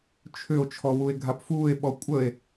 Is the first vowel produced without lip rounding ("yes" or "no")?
no